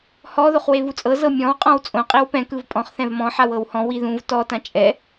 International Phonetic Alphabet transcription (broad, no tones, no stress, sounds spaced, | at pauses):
h ɔ ð o χ w e v u t͡sʼ ɤ z ɤ mʲ ɔ̃ w qʼ ɔ̃ w t͡sʼ õ qʼ i w p ɛ̃ k ɯ v pʼ ɔ̃ χ θ ɛ̃ v m ɔ̃ ħ a w ɤ w h ɔ̃ w i ð ũ v t ɔ t ã t͡ʃʼ ɛ